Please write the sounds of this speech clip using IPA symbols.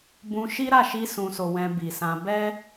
b ũ˧ ʃ i˦ ɾ a˦˨ ʃ i˧ s ũ˨ s o˨ w ɛ̃˧ b i˨ s ã˧ b ɛ˦

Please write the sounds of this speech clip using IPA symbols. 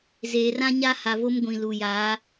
z eː˨ r ã˦ ɲ a˦ h a˨ v o˦ m ɡʷ ĩ˨ l u˨ j aː˨˦

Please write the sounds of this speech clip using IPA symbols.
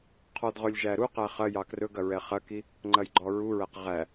qʰ ɔ d ʁ ɵ lʲ ʒ æ ɾ u q æ χ ɐ j ɑ k r ɵ ɡ ɐ ɹ ɛ χ ɐ k i | ŋ͡ǃ ɐ j ɡ͡ǃ ɔ ɹ u ɹ æ q ʁ æ

